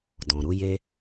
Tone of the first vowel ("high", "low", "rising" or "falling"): low